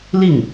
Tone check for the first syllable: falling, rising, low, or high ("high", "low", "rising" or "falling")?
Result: falling